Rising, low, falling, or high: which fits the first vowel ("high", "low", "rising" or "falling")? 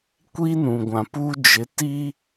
high